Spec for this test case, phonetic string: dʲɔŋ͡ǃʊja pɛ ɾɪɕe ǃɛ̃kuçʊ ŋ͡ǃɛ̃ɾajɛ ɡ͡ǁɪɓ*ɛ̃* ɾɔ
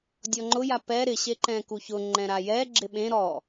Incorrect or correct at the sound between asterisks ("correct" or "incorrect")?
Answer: incorrect